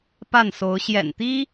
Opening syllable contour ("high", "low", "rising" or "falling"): falling